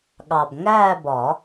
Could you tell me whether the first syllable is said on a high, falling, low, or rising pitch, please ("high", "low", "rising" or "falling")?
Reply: low